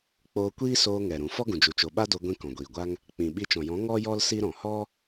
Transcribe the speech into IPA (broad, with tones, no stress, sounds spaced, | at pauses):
k͡p oː˧ kʷ iː˦ s oː˧ ŋ ɛ˨ ɾ ũ˨ f ɔ˦ ɡ ũ˨ d͡ʒ u˨ t͡ʃ o˨ ɓ a˦ d o˧ ɡʷ ĩ˧ k ɔ̃˨ ɡʷ iː˨ ɡʷ a˦ ŋ | k͡p ĩ˨ ɓ i˧ t͡ʃ ɔ̃˨ j ɔ̃˨˦ ŋ ɔ˦ j ɔ˦ l s i˦ ɾ ɔ̃˨ h ɔ˦